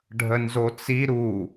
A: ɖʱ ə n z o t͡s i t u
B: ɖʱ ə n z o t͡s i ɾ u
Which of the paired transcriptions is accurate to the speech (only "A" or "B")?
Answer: B